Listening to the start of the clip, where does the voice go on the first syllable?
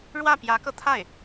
falling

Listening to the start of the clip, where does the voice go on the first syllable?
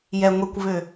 low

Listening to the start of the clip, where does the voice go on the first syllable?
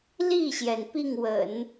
falling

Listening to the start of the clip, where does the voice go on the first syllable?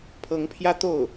rising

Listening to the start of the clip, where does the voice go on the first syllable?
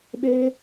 high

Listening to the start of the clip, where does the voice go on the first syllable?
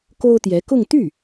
high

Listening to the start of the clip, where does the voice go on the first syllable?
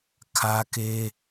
high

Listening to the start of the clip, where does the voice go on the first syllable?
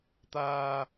low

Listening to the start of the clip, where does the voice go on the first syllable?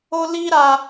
high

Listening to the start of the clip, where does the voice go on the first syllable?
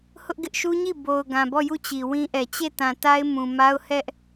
high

